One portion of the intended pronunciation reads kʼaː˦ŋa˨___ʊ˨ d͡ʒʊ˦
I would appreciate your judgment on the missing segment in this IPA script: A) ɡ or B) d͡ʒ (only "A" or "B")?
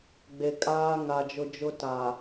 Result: B